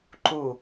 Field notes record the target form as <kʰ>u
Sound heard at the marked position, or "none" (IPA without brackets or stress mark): ǃ